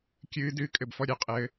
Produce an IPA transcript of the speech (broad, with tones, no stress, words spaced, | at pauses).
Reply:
kʲɨː˦˥ dɨː˦˥kʼɘ˧bfɔ˥˧ɾʲɘ˥˩ qʼɘ˦˥